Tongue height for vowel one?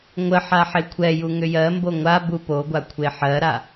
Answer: mid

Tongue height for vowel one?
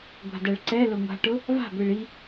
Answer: low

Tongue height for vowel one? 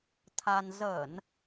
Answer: low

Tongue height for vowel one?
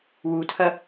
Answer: high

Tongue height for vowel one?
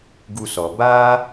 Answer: high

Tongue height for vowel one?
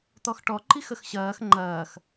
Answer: mid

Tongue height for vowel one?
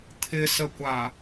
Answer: high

